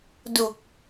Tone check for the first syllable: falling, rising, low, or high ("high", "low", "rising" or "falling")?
low